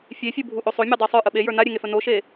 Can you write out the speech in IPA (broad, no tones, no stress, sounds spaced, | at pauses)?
fʲ e fʲ u bʱ u ʔ o sˤ o mʲ e dˤ e sˤ ə˞ ʔ ə ɓ e j ə˞ n a ɾʲ e ŋ e f ə n o ʃ e